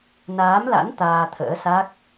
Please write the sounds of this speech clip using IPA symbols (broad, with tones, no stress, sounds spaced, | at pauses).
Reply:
n aː˨˦ m l a̰˧˥ n t̪ aː˧ t̪ʰ ə̰ː˧˥ s a˦˥ k̚